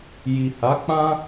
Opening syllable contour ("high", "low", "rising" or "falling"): low